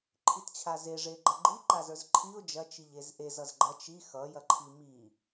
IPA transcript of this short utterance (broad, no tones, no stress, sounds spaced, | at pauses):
ǃʰ i t t͡ɕʰ a z e ʐ e ɡ͡ǃ ʌ ɡ͡ǃ i ǃ a z ə˞ z ǃʰ i ʊ̯ d͡ʒ ɐ t͡ʃ i ʎ e z ʔ e z ʌ z ɡ͡ǃ ɐ t͡ʃ i x ʌ j ɐ ǃʰ i m i